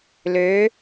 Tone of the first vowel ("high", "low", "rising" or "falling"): rising